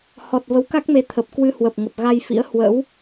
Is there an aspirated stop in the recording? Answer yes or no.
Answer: yes